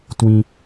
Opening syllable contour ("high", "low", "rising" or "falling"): low